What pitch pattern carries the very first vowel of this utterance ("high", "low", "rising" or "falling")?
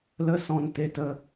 high